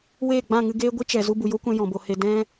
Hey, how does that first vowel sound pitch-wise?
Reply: falling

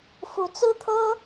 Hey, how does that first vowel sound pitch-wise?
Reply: rising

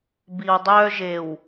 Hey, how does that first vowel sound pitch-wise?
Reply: low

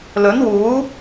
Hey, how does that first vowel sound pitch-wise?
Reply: rising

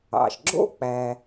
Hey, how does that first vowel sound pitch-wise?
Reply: low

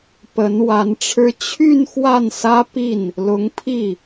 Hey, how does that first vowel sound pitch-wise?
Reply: rising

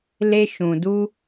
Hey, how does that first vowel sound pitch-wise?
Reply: high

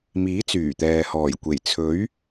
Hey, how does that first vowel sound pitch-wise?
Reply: rising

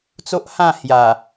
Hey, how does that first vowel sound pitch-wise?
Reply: high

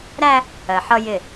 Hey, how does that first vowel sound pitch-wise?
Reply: high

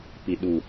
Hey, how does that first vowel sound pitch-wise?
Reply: low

